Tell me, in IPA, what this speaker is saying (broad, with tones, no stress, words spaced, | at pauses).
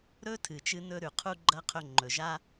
ɾɵ˦tʰɨ˨t͡ʃɨ˧ nɵ˧ ɾʉ˨qʰu˧ɡ͡ǃɐ˧ qʰɵ˧ŋ͡ǃɵ˨ʒa˦